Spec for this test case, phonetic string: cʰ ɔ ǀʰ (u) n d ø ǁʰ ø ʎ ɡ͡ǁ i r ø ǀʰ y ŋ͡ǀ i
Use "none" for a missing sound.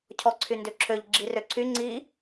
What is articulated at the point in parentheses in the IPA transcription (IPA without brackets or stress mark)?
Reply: y